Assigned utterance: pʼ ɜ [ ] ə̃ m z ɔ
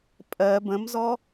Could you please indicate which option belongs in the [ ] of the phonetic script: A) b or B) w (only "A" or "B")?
A